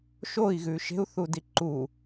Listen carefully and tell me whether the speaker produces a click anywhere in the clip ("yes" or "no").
yes